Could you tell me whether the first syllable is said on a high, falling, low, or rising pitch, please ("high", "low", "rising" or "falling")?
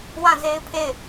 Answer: falling